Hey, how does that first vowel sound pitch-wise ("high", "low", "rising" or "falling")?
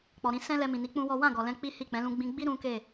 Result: low